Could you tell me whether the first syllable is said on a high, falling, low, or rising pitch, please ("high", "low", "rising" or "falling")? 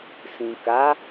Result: low